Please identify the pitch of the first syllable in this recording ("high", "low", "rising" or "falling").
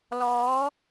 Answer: rising